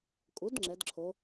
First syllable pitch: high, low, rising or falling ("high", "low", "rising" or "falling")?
rising